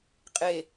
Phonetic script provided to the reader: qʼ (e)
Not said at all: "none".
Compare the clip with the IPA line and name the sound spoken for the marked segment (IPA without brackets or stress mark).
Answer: e